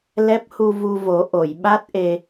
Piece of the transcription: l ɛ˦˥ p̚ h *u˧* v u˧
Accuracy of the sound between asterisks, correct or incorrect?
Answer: correct